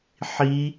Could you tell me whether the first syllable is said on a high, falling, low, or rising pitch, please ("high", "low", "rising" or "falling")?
high